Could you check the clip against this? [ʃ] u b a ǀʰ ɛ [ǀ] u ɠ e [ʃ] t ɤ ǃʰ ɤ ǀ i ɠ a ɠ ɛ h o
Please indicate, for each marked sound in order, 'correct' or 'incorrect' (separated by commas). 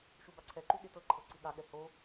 correct, incorrect, incorrect